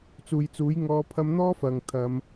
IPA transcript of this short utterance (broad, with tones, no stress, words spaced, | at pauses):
t͡suː˨jt͡suː˨˥j ŋɔː˨˧pʰɐ˧mn̪ɔː˥ fɐ˨ŋt̪ʰɐ˨˧m